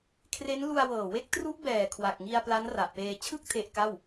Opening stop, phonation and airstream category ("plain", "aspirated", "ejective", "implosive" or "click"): aspirated